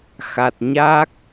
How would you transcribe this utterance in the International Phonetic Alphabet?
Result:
x a˨˩ t̚ ɲ a˦˥ k̚

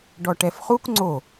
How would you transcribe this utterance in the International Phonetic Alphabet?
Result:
ɖ ɔ ʈ ɛ f χ u k ŋ͡ǀ o

